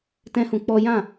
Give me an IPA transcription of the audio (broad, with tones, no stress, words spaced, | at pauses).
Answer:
tɛ̃˦hũ˧ k͡pɔ˦ jã˦˨